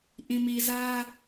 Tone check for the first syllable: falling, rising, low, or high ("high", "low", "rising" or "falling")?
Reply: low